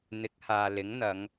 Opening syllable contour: rising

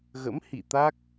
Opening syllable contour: rising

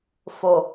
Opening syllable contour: low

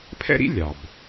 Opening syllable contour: high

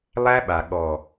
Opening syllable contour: high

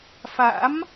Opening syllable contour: rising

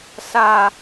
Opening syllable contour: low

